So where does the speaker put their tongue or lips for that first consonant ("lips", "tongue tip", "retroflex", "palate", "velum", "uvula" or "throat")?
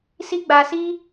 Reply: tongue tip